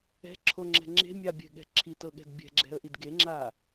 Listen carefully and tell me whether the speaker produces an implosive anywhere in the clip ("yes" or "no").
yes